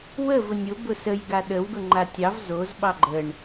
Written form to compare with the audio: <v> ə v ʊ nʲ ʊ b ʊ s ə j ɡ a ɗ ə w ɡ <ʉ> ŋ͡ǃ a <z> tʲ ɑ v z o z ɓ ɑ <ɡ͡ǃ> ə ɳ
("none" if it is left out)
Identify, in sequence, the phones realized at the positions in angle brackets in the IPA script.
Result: w, ʊ, none, ɡ͡ǃ

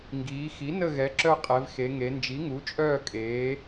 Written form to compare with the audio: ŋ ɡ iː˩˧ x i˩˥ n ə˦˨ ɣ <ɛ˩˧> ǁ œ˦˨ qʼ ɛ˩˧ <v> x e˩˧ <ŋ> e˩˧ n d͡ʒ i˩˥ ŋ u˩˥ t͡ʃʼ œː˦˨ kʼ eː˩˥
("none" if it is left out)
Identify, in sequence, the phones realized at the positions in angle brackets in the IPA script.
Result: ɛ˩˥, v, ŋ

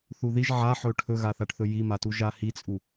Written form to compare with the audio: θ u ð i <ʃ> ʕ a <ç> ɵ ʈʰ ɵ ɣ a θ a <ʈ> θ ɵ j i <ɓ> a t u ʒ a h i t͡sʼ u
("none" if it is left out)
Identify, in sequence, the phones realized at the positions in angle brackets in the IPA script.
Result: ʒ, ħ, ʈ, m

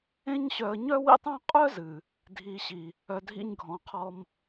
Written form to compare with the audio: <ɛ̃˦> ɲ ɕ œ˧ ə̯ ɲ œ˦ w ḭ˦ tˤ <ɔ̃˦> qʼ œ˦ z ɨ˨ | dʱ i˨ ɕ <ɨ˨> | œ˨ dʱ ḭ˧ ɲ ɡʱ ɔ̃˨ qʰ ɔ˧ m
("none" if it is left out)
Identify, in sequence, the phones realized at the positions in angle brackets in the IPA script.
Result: ẽ˦, ɔ̃˦, i˨

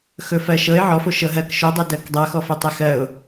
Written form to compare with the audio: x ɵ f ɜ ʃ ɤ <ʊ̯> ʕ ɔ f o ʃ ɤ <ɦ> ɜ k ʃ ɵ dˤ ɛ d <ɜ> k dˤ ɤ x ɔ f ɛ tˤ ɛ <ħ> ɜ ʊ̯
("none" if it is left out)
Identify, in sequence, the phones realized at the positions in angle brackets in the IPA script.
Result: ɪ̯, ɦ, ɜ, x

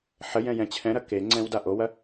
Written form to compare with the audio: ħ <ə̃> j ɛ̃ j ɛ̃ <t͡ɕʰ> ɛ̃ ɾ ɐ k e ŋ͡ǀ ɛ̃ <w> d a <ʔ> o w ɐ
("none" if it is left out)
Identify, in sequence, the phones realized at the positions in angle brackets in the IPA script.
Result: ə, t͡ɕʰ, w, ʔ

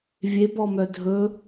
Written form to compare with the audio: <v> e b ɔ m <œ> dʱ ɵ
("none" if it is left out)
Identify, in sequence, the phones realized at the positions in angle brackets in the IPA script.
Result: vʲ, œ

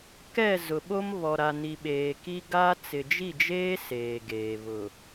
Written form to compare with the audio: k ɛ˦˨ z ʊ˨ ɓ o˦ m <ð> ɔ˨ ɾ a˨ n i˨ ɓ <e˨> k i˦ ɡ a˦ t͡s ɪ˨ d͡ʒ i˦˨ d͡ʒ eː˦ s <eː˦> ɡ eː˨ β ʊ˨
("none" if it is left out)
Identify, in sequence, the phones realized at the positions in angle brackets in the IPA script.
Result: β, eː˨, eː˨

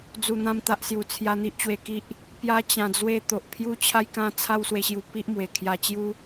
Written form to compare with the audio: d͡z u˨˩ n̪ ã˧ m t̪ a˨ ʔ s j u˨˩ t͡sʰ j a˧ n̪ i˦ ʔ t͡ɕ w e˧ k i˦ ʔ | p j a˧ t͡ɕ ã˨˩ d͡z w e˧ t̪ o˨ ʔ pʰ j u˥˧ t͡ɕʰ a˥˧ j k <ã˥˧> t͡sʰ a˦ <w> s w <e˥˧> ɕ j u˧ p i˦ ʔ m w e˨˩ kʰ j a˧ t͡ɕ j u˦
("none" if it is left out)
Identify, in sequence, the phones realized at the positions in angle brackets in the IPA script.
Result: ã˥˧, w, e˧

